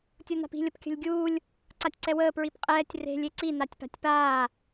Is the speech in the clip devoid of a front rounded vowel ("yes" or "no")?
yes